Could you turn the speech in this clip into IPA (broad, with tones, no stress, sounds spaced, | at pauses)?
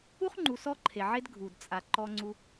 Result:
u˥ χ ŋ͡ǃ u˨ s ɔ˥ ǃʰ e˩ ʕ e˦ d ɡʱ u˩ d t͡sʼ a˩ ǃ ɔ˨ ŋ͡ǀ u˨